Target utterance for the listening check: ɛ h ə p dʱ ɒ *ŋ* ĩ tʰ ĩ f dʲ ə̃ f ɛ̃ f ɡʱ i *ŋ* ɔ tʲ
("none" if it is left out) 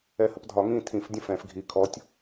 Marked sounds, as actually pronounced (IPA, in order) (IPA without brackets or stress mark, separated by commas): ŋ, kʰ